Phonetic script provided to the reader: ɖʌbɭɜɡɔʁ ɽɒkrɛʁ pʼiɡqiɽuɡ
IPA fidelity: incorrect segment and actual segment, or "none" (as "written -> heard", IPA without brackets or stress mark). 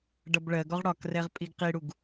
none